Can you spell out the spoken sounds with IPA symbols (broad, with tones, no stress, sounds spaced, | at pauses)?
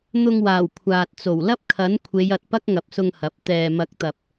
n̪ ʊ˧ ŋ w aː˨˩ w kʷʰ aː˨ t̚ t͡s o˨˩ w l ɐ˥ p̚ kʰ ɐ˨˥ n kʷʰ e˨˧ j ɐ˨ t̚ p ɐ˥ k̚ ŋ ɐ˨ p̚ s ʊ˧ ŋ h ɐ˨˥ p̚ t̪ ɛː˨ m ɐ˨˥ k̚ t̪ ɐ˨ p̚